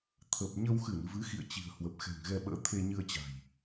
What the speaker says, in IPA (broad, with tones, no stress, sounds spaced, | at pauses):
t̪ʰ ə˨˩ p̚ ɲ ə˧ w x ɨ˧˩ n v ɨ˨˦ x ḭ˧˨ ə̯ t͡ɕ i̤˨˩ ə̯ h w ə˨˩ p̚ x ɛ̤˨˩ ŋ ɣ ɛ˧ ɓ ə̰ː˧˥ t̪ʰ e˧ ɲ ɨ˧ ə̯ t͡ɕ a̤˨˩ j